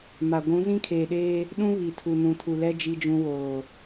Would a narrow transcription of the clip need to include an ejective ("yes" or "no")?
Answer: no